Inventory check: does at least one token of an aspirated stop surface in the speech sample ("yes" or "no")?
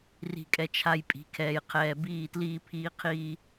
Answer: yes